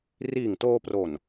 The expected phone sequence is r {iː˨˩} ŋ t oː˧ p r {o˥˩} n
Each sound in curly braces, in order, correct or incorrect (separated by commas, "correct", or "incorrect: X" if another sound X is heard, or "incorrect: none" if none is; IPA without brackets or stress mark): correct, incorrect: o˨˩